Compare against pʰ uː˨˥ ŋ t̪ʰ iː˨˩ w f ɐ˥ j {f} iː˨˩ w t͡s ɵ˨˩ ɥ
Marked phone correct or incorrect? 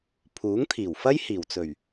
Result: incorrect